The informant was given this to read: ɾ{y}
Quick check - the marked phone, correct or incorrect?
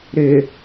incorrect